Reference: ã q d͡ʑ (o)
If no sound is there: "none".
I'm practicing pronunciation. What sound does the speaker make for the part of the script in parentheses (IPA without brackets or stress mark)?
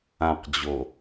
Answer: o